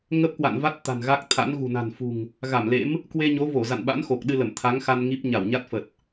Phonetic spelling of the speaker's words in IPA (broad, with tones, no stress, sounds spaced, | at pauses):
ŋ ə˦˥ p̚ k w a̰˧˨ n v a˦˥ t̚ t̪ a̤˨˩ n ɣ a˦˥ k̚ t̪ʰ a̰˧˥ n ɣ ṳ˨˩ n a̤˨˩ n f ṳ˨˩ ŋ | ɣ a˧˩ m l ḛ˧˥ m | k w e˧ ɲ o˨˦ v o˧˩ z a̰˧˨ n ɓ a̰˧˥ n x o˨˩ k̚ ɗ ɨ˧ l ə˧˩ m t̪ʰ a˨˦ ŋ x a˧ n ŋ i˦˥ p̚ ɲ a˧˩ w ɲ a˦˥ t̚ f ə˨˩ t̚